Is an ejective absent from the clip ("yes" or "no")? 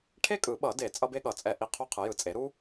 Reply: no